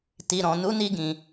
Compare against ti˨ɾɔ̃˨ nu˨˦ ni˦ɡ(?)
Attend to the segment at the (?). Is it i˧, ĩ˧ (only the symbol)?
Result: ĩ˧